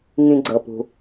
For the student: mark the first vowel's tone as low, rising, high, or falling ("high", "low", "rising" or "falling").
low